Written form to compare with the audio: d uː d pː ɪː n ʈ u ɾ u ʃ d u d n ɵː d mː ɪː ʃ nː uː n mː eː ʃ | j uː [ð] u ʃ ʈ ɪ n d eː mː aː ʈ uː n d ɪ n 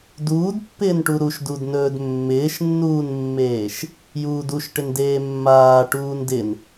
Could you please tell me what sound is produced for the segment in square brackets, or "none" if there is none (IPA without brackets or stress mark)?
d